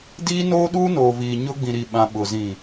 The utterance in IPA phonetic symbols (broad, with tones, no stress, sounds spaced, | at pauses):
d iː˦ n oː˦ ɗ uː˦ n oː˨ v iː˨ ɲ ʊ˦ ɡ͡b ĩ˨ ɾ i˨ ɓ ã˨ ɓ ʊ˨ z ĩ˨